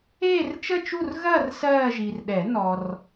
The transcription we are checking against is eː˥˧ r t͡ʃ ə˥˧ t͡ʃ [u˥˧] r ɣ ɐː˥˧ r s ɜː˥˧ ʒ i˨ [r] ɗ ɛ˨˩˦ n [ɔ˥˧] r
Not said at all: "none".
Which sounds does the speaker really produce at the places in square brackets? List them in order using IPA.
u˥˧, r, ɔ˨

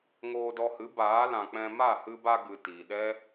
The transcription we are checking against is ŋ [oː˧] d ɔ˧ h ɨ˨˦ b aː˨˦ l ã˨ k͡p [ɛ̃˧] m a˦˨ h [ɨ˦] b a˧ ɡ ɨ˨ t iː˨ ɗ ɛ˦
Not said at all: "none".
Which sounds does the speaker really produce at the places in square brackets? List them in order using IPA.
oː˧, ɛ̃˧, ɨ˧

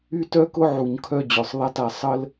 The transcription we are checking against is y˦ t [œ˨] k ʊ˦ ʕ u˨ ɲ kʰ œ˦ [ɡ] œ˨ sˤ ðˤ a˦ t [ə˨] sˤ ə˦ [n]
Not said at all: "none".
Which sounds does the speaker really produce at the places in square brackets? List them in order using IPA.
œ˦, d͡ʑ, a˨, l

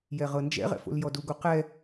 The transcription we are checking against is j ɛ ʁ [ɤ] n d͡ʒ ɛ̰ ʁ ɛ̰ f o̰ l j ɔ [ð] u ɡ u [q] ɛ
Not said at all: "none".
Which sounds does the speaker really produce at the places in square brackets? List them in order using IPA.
ɤ, d, q

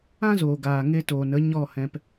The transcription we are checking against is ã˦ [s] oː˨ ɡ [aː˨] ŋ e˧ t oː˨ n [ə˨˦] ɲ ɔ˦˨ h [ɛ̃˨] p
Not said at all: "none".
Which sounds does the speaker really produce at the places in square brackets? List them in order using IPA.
z, aː˨, ə˨˦, ɛ̃˧

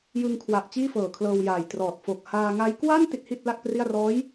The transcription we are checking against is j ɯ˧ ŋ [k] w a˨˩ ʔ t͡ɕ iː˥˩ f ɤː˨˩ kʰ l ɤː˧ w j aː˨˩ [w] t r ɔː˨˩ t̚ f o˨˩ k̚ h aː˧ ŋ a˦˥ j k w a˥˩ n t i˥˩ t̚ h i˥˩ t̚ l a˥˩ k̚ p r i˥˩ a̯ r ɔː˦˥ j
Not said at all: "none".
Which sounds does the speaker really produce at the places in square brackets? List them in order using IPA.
kʰ, j

